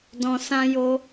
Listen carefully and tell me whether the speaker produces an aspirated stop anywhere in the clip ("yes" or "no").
no